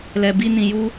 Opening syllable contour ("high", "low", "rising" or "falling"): low